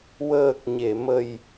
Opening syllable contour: low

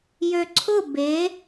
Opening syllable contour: low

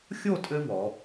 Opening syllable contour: falling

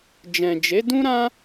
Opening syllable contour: low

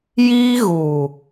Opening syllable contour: high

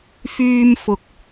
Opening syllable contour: high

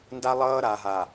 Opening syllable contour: high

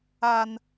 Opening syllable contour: high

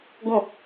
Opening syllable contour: falling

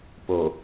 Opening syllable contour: low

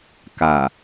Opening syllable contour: low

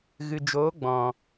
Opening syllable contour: low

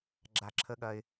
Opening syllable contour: low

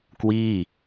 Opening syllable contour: falling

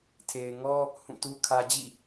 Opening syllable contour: low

